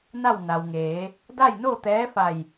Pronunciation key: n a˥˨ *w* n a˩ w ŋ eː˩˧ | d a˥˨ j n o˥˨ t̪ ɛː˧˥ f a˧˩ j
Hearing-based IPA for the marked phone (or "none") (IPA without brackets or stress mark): w